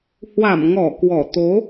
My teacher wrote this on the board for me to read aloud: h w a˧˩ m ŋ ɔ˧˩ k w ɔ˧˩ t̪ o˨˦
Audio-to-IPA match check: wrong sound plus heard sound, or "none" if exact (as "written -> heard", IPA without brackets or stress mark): none